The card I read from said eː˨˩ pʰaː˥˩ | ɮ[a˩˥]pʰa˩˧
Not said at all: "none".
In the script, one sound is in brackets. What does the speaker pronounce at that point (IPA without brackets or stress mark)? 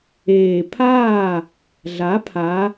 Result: a˩˥